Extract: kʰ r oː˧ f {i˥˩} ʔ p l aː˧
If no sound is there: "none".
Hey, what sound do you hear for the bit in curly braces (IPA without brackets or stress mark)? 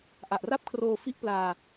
i˥˩